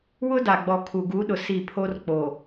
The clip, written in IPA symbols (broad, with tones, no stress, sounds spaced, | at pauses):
w ʊ˦ d a˨ ɡ͡b ɔ˨ kʰ u˨ ɡ u˨˦ ɗ ʊ˨ s i˦˨ pʰ o˦ r k͡p o˨